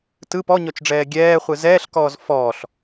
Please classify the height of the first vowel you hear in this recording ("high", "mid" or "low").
high